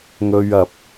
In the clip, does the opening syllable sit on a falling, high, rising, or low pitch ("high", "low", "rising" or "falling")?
high